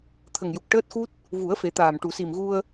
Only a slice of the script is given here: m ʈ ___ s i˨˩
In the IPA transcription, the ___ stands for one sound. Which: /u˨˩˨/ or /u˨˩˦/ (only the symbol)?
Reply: u˨˩˨